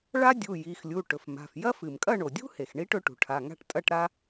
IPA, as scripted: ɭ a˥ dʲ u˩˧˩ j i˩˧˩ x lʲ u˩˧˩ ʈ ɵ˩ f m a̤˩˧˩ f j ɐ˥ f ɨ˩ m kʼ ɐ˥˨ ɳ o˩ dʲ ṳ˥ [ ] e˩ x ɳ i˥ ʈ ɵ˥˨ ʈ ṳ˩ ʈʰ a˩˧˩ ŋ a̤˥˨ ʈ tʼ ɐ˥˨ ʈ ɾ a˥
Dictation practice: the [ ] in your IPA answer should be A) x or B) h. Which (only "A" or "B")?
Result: B